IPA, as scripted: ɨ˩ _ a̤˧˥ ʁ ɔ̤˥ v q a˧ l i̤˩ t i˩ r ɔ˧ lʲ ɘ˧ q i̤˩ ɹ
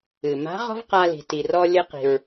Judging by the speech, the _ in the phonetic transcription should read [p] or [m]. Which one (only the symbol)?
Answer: m